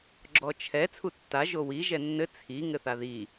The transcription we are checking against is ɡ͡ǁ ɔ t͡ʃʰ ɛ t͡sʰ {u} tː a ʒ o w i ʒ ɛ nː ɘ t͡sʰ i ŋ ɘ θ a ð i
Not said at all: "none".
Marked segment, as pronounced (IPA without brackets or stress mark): u